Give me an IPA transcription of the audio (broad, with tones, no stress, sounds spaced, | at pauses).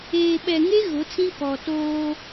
eː˨ ɓ ɛ˨ ŋ e˦ ɣ ʊ˨˦ t͡s ĩ˦ k ɔ˨ t oː˦